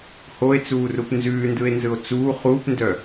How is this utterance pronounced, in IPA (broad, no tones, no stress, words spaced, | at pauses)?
hoe̯t͡suːrup nzʉːndɯe̯nzɯo̯ t͡suː χuːpndœ